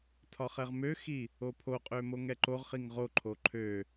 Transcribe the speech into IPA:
tʰɒχɛʁmøxi | opʰoqʼø moŋɛǃoʁχiŋ ʁoǃʰo ǃʰø

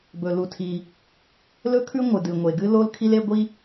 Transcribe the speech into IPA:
bɵ˩lu˩tʰi˩ | lɵ˥kʰʉ˥ ŋʷɨ˩dɨ˩ ŋʷe˩ɡɨ˥lo˥l kʰi˥le˥ɡʷi˥

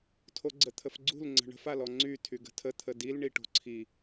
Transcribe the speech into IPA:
tʰoɡ͡ǀət̪ʰəfɡ͡ǀṳl ŋ͡ǀə̤ɳə̤f alɔŋ͡ǀy tʰyɡə̤tʰə t̪ʰədil ɳiʈo̤ǀʰi

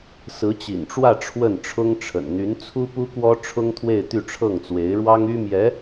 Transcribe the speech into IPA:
sɹ̩˧˥t͡ɕḭ˨˩nʈ͡ʂwä˥˧ ʈ͡ʂʰwə˥˩nʈ͡ʂʰʊ˥ŋʈ͡ʂʰə̰˨˩n n̪y˧˥n t͡sʰu˥pu˥kwɔ˥ ʈ͡ʂʰʊ˥ŋt̪ʰwe˥˧ɪ̯ t̪y˥˧ʈ͡ʂʰɤ˥˩ŋt͡swe˧˥ɪ̯ɻwɑ˥ŋ y˥mjɛ˧˥

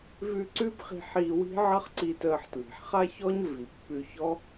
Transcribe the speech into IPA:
vʉ˧ ǀʉ˥bχi̤˧ħiː˧wi̤˥ ʕʌ˥χǀiː˧təː˧ħ tli̤˩ħχa˥çɔ˥ɲ vi˩pːʉ˧çɔ˥

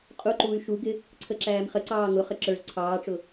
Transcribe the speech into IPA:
qʼuǃuːy̯ ʃuɡɪ | ǀʰəǁæːmχəǀɑː ŋʊχə ǁə˞z ǀʰɑːʈ͡ʂʊ

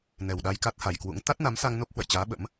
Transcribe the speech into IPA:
nɛ˨˩wɗa˧jka˦˥t̚ha˨˩j kwṵ˧˥ŋ t̪a˦˥t̚na˨˦msa˧ŋ no˦˥p̚hwə̰˧˨jt͡ɕaː˨˦ ɓə̰˧˥m

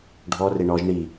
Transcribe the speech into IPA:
ɖʱɔ reɳɔʒ ɳi

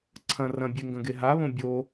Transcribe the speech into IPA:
ǀʰɐ̃ rɐ̃bʲeŋɡɐ̃ɡe ɦaβõ bʲo

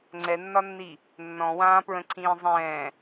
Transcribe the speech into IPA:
ŋ͡ǀɛnːɒnːi | nːɔ̃wãːpɹə̃ǀʰĩː zˤɛ̃ː

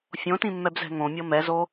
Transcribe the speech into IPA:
fʲõtĩmːɛbzɛ̤ ŋõmʲɤ mɛzo

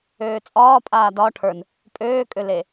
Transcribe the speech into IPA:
øːt͡sʼɒː pʼaːdɒ ʈʰə˞n | pʼøːkʼøle

